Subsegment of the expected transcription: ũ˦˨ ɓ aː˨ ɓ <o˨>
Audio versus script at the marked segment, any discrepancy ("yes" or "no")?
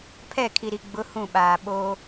yes